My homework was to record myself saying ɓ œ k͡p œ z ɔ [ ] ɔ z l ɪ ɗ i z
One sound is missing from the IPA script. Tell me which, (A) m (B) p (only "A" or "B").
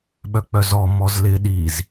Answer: A